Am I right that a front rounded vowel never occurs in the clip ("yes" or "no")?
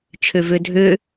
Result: no